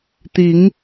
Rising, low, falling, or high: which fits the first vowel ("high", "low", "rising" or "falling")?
rising